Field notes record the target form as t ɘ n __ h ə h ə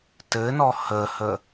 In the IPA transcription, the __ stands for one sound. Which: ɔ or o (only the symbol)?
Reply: ɔ